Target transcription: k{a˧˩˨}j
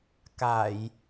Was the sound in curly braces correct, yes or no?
yes